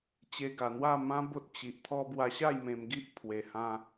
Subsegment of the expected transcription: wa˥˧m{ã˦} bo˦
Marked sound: correct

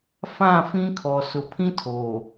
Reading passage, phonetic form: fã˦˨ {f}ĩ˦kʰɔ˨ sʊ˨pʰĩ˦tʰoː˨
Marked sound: correct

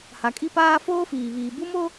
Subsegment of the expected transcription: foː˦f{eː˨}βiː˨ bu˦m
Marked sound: incorrect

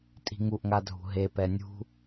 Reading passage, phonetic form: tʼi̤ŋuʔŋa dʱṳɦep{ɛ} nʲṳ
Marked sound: correct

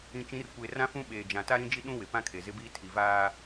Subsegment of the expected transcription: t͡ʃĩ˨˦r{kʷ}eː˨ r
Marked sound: correct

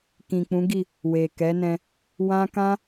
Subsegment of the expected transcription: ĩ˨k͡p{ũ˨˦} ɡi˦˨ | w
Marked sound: correct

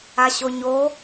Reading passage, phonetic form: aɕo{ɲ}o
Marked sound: correct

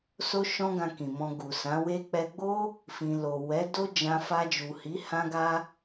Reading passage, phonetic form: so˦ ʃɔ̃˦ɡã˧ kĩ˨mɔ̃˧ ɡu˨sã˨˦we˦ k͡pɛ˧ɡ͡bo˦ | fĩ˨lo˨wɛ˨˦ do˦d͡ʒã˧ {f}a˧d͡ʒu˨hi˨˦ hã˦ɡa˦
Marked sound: correct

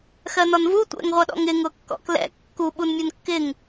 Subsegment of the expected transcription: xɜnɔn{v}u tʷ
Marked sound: correct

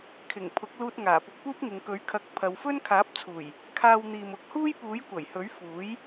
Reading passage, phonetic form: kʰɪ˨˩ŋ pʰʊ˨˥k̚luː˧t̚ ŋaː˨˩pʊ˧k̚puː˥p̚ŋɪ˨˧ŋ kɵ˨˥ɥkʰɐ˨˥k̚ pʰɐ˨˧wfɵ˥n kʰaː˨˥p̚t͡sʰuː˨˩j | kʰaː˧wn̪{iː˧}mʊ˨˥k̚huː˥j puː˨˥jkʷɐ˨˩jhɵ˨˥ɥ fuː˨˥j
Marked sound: incorrect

